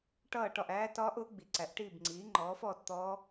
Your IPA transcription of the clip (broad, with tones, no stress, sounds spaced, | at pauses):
ʈ ʌː˥˨ ʈ ɒ˥˨ ʔ æː˦˥ t ɒː˦˥ ʔ ʊː˩˥ ɡ͡b i˩˥ ǀ æ˩˥ ʔ ʈ iː˥˨ b ŋ͡ǀ iː˩˥ ŋ͡ǃ ɔː˩˥ f ɔː˥˨ t t̪ ɔː˦˥